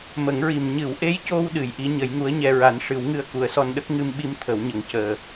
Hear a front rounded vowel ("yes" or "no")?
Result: no